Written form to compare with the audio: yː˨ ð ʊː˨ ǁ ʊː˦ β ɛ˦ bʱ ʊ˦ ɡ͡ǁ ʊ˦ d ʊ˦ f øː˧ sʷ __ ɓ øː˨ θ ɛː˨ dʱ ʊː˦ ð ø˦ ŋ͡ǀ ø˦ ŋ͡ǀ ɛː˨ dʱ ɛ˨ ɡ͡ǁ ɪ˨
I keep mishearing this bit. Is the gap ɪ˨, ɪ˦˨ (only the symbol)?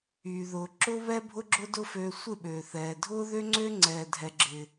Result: ɪ˦˨